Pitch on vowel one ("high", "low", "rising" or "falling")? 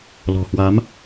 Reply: low